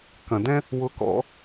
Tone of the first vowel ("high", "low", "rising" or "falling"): low